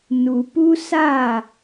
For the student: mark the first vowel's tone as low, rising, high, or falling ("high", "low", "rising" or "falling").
low